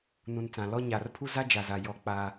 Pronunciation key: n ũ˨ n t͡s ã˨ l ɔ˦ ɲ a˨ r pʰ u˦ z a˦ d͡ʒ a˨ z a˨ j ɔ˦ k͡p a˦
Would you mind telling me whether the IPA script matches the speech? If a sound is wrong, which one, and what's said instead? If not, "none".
none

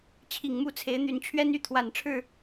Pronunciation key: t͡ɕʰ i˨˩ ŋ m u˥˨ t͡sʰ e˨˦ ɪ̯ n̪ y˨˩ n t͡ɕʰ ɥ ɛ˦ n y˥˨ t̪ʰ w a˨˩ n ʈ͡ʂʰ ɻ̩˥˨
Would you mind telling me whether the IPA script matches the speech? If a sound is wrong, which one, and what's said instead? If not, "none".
none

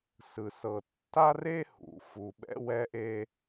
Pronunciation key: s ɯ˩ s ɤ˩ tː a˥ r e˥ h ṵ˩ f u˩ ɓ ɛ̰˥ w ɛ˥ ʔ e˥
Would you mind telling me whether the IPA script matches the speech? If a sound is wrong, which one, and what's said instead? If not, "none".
none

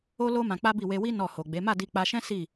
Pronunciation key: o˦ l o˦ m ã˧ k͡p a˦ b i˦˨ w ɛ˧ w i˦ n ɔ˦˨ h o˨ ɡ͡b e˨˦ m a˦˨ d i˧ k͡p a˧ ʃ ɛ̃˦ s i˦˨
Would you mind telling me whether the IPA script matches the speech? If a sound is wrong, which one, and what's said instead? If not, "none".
ɛ˧ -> e˧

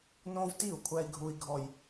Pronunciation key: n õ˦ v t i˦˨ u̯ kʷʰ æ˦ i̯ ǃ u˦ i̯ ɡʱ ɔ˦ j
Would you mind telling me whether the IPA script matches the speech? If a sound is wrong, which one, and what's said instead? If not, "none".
ǃ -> ɡʱ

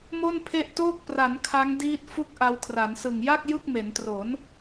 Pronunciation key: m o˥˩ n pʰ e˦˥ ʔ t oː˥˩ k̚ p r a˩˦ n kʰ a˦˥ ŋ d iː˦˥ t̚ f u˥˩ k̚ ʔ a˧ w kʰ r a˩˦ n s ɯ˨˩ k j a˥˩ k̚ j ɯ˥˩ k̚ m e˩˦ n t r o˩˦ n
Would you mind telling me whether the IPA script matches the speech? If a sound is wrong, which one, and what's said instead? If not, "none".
k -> ŋ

